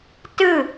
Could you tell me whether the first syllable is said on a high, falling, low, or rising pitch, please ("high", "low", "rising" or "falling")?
falling